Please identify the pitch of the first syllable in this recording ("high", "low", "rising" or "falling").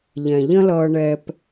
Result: low